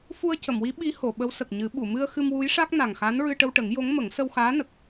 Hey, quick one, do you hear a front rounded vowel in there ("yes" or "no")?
no